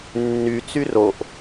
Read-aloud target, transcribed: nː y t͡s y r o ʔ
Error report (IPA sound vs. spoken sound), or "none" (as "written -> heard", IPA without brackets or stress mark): none